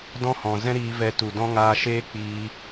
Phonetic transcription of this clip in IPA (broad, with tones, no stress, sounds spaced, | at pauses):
d ɔ̃˦ h ɔ̃˨ z ɛ̃˦ ɾ iː˧ v ɛ˧ t u˨ d ɔ̃˦ ŋ aː˧ ʃ eː˦ k͡p iː˧